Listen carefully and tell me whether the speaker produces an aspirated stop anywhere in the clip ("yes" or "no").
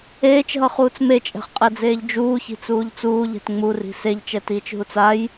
no